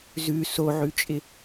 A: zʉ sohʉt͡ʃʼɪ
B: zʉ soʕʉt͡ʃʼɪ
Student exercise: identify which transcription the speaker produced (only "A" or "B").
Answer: B